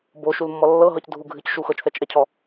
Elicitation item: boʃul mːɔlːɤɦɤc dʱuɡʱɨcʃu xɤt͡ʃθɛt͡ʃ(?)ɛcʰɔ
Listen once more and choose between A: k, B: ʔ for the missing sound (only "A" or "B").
B